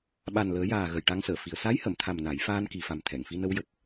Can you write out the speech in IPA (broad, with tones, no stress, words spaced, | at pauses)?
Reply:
ɓa˨˩nləː˨˩˦jaː˨˩ ɣə˨˩jʈa˧˥ŋsəː˨˩˨fi˨˩ə̯ sa˧˥jhə˨˩˨mt̪ʰa˨˩m na˨˩˦j faː˧nki˨˩fa˨˩m t̪ʰɛ˨˩˨ŋfi˧nə˧˥w jə˨˩k̚